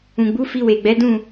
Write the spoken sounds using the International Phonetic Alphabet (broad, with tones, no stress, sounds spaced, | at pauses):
ũ˨ ɡ͡b u˨˦ f i˧ w e˨ ɡ͡b ɛ˨˦ d ũ˦˨